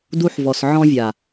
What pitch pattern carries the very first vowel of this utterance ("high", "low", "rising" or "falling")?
high